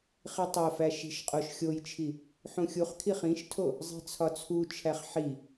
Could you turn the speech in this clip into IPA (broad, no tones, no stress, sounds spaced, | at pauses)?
χ i tˤ o f æ ʃ i̤ ʃ qʼ o ʃ xʲ o j t͡ʃʰ i | ħ ũ xʲ u χ kʰ i χ ĩ ʃ tʰ o | zˤ i̤ t͡sʰ ɒ t͡sʰ u t͡ʃʰ æ χ ħ i